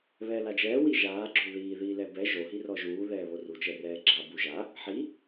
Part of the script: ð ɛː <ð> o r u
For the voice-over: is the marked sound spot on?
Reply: no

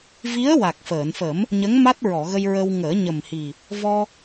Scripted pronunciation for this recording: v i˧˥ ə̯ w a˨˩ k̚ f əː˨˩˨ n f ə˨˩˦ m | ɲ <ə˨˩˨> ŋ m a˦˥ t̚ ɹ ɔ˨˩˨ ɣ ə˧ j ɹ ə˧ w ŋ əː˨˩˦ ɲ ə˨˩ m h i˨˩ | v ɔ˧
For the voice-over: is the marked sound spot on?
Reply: no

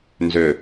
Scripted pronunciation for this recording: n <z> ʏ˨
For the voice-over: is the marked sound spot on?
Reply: yes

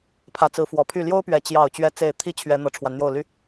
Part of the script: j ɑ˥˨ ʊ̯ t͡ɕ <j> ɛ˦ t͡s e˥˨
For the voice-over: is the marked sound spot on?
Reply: no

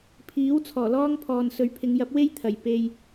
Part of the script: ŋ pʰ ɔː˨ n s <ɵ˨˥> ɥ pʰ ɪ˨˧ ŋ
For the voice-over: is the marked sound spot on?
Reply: yes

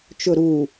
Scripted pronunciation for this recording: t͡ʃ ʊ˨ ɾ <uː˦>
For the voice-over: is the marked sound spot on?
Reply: no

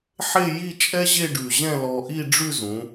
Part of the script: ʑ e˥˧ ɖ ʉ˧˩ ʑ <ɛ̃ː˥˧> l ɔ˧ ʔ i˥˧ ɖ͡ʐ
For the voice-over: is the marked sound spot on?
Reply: no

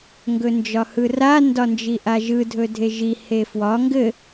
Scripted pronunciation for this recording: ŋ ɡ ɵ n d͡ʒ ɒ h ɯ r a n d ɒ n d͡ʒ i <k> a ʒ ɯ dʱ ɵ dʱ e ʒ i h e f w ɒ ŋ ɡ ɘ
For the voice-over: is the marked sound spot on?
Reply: no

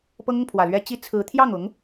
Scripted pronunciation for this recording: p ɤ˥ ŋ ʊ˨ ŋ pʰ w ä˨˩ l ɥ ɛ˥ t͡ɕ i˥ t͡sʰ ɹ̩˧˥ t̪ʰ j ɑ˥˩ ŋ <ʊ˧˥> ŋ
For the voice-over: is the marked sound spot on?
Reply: yes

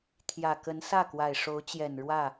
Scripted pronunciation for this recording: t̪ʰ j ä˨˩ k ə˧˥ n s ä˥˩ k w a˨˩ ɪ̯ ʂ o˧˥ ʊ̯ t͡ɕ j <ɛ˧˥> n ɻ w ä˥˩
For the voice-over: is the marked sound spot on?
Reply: no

